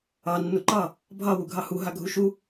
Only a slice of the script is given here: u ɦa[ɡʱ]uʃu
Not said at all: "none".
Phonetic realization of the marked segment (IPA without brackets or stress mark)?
ɡʱ